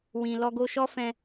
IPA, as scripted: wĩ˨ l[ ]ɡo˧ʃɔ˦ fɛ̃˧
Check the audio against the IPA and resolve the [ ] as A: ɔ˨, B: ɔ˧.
B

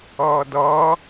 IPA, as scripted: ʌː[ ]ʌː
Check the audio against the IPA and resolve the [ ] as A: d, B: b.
A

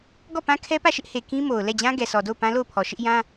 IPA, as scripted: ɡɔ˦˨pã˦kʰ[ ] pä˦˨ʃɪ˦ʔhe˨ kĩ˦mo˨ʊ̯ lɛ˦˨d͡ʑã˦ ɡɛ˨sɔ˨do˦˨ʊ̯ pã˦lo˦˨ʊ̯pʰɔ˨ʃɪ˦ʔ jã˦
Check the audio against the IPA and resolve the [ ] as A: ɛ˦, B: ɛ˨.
A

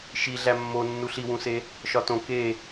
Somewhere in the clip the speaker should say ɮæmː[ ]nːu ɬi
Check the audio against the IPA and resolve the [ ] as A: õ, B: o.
B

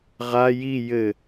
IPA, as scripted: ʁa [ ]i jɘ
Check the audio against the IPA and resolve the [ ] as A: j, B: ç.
A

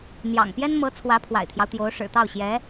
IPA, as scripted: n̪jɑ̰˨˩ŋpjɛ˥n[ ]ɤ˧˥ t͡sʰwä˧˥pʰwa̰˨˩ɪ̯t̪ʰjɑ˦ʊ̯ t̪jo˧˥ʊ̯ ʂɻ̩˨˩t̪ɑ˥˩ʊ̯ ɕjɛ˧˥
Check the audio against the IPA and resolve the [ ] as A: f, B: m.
B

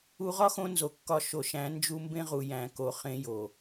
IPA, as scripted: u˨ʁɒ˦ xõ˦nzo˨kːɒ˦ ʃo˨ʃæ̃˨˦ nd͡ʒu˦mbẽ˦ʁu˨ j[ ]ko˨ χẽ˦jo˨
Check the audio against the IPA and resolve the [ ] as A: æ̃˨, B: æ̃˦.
A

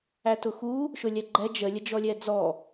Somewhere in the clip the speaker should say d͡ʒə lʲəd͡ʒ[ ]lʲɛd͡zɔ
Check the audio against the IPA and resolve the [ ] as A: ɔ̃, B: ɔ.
B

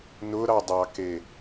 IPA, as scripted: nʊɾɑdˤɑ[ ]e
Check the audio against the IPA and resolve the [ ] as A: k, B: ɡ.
A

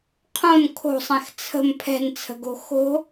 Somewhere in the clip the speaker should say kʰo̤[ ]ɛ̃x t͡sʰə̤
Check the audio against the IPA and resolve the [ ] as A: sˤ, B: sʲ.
A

